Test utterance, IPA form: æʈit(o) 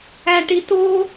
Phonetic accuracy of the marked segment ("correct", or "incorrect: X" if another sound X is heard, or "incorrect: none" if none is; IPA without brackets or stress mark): correct